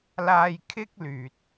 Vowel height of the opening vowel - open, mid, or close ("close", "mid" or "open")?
open